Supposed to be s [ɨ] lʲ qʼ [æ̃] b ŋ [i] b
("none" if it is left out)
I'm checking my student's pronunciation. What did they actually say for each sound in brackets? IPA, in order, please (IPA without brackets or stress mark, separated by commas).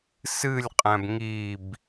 ɨ, æ̃, i